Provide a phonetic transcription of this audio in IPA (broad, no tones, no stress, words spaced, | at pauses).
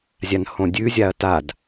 zʲanhõdʲʉ zʲaɐ̯tad